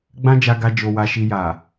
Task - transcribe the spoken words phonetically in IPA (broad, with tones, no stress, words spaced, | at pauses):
ɡ͡bã˦d͡ʒa˧ɡa˧ d͡ʒo˧wa˧ʃi˧ ja˨